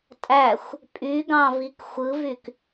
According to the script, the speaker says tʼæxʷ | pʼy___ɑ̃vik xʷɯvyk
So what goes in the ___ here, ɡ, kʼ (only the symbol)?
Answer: ɡ